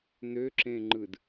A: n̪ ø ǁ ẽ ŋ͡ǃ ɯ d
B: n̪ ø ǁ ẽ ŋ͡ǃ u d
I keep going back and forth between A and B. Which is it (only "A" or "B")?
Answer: A